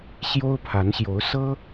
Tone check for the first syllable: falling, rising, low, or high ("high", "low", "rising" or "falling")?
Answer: high